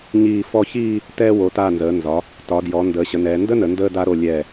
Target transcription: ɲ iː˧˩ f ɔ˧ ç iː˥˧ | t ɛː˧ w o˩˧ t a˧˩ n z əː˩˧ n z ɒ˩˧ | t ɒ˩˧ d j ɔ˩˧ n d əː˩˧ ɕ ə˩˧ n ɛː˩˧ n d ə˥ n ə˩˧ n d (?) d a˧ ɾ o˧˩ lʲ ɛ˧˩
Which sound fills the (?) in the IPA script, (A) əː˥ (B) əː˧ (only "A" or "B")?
B